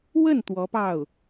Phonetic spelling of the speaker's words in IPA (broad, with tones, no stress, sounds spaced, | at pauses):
w ə˥˩ n t̪ w ɔ˧˥ p ɑ˥˩ ʊ̯